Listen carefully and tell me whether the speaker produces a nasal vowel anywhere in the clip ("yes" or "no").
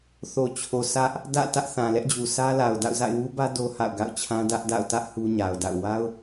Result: yes